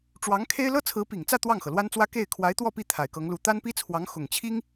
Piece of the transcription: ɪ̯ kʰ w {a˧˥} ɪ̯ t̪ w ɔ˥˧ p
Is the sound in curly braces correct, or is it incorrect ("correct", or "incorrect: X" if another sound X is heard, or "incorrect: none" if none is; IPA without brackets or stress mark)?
correct